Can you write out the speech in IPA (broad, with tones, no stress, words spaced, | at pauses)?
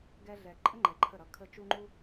ɡɛ˧ɮɛ˨ǃʼə˦ŋ͡ǃɛ˨ ǃʰə˦˨ɾʌ˧kʰə˦ t͡ʃu˦ŋ͡ǃu˦